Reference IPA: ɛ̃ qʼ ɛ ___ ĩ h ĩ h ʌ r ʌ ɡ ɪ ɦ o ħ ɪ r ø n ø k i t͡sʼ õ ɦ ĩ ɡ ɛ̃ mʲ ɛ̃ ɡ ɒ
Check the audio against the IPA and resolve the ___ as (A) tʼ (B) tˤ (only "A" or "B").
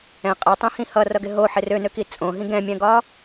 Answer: B